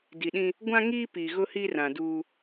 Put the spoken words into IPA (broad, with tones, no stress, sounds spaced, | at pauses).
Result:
d i˨ ɗ ĩ˦ | ɡʷ ã˦ ŋ iː˦ p i˨ ɣ ʊ˦ h i˦ r ã˨ d uː˦